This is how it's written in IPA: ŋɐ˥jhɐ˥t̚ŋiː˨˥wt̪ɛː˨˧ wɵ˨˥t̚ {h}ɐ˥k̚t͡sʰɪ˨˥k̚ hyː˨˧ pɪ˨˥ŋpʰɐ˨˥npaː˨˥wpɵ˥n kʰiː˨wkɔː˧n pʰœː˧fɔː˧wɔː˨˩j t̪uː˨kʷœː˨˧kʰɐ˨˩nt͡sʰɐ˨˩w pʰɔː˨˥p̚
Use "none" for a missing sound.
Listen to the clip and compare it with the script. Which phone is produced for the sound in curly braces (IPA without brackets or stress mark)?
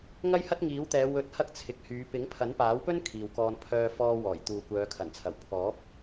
h